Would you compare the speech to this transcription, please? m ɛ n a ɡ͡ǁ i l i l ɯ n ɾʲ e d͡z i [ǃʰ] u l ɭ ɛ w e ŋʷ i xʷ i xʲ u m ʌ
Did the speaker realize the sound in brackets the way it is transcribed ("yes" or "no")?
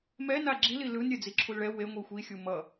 no